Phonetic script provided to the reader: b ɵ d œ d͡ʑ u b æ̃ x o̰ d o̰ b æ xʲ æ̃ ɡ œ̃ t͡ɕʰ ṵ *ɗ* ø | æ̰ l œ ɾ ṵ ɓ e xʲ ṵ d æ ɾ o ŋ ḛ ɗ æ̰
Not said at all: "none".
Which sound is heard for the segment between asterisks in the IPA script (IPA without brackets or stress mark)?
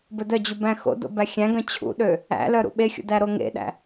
ɗ